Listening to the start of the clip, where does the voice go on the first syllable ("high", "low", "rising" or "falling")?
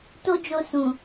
high